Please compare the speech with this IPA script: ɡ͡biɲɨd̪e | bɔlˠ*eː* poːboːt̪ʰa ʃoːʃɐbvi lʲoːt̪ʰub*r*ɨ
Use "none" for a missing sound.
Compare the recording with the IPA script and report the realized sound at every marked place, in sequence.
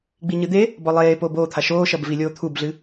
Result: eː, ɮ

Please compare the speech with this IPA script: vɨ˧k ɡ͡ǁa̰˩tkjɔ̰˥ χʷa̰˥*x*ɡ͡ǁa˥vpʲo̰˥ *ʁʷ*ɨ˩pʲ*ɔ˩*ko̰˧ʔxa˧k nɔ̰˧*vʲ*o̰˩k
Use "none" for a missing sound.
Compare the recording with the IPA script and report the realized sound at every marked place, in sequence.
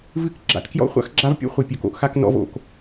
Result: x, χʷ, ɔ˩, v

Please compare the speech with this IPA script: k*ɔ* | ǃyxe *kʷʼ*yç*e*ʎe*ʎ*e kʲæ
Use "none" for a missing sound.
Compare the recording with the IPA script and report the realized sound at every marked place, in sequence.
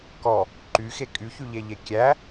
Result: ɔ, kʼ, y, ʎ

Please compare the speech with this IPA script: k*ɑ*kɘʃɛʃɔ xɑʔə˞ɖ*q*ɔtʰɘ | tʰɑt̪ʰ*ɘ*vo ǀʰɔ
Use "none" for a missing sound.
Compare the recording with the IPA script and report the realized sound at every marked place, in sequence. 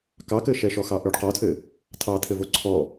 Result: ɑ, q, ɘ

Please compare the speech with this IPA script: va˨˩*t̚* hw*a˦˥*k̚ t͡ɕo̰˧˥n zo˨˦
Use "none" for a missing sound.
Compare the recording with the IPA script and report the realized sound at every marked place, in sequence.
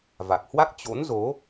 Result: k̚, a˦˥

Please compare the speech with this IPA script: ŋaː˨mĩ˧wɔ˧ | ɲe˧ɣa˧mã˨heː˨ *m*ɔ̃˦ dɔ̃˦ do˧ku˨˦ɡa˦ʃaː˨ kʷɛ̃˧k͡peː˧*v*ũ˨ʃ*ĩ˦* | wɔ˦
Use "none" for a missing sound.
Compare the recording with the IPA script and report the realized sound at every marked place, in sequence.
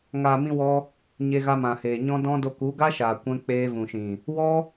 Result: ɲ, v, ĩ˨

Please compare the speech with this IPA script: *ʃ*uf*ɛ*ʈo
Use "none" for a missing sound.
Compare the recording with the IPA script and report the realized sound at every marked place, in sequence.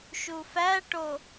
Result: ʃ, æ

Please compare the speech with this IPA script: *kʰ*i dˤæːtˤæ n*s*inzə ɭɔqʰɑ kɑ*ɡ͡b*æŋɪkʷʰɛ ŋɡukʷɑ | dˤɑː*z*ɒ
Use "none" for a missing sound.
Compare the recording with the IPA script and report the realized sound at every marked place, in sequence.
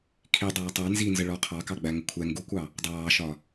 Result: kʰ, z, ɡ͡b, ʃ

